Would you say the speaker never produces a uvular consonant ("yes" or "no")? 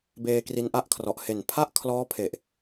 yes